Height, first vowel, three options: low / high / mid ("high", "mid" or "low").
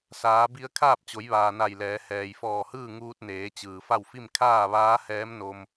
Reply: low